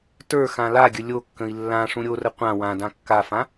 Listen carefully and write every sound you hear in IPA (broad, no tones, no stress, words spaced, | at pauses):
tə˞ xãlaɡʲə lʲokːə̃i̯ lːã ʂũɾʲorə qʷã wãdã kːafã